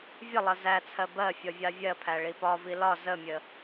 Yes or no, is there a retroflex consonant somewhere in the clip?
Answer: yes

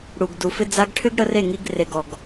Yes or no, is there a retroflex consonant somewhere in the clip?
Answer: yes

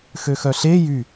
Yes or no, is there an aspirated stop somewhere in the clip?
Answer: no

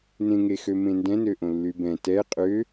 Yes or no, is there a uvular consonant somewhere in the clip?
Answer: yes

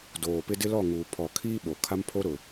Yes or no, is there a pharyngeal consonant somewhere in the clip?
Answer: no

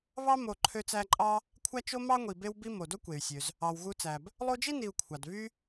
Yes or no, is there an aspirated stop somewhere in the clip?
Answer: yes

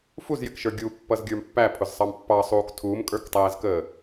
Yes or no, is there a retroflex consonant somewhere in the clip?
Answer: no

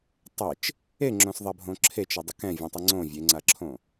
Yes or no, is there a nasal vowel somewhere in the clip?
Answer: yes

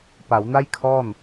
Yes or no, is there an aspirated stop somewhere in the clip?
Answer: yes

